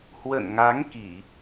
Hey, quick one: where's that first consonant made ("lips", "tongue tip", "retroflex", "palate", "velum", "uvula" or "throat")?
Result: throat